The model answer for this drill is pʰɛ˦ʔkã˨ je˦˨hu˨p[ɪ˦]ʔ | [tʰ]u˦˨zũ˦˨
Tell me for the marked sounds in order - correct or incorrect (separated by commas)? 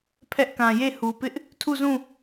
correct, correct